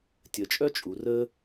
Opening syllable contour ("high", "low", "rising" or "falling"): low